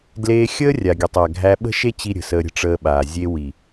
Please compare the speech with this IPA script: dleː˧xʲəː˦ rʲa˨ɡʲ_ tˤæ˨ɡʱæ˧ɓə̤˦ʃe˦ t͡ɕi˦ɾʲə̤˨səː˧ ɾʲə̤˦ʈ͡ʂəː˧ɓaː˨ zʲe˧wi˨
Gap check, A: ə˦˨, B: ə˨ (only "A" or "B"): B